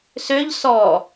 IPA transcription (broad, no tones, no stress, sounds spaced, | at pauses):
s ø ʎ s ɔ